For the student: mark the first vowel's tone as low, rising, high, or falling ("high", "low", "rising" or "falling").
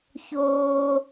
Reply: high